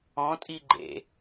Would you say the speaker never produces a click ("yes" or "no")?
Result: no